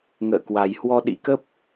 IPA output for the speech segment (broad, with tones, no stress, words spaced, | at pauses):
ŋə̰ː˧˨kwa˨˩jhwɔ˧ ɗḭ˧˥kə˦˥p̚